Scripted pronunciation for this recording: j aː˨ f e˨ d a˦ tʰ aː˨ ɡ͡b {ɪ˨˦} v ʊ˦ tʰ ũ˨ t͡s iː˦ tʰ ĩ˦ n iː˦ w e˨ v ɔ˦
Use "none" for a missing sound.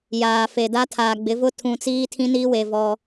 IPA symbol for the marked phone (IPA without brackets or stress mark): ɪ˨˦